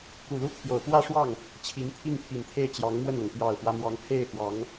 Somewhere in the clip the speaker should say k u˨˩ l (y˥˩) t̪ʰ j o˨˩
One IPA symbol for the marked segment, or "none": u˥˩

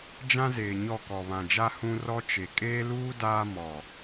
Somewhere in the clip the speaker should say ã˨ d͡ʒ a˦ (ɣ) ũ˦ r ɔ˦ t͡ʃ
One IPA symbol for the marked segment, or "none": h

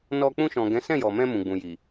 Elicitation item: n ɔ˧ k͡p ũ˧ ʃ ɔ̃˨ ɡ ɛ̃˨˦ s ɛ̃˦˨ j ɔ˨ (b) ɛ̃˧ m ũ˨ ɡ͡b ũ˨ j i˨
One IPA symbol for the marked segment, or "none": m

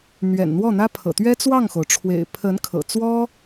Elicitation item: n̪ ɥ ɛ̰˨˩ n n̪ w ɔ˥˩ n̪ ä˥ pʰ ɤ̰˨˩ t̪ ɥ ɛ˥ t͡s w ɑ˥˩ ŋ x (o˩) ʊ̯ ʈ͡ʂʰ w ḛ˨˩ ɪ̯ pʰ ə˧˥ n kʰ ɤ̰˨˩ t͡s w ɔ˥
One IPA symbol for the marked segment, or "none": o˩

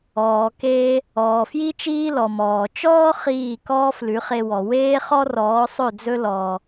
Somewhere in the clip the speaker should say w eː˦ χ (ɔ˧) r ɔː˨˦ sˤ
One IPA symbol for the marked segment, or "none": ɔ˦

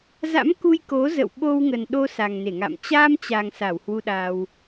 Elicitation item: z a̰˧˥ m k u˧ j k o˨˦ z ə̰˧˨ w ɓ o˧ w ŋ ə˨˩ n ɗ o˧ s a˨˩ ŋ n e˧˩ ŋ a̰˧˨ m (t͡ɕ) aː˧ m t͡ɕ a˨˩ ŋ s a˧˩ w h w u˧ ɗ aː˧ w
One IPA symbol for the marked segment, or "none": t͡ɕ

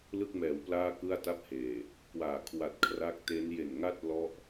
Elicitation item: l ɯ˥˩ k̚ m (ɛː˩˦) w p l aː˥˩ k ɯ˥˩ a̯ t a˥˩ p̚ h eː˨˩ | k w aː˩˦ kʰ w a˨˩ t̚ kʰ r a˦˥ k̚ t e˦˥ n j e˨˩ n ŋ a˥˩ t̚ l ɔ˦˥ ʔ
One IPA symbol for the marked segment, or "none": ɛː˩˦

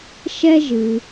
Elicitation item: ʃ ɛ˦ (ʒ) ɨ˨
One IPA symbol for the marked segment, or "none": ʒ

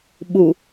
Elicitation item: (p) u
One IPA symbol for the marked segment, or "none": ɓ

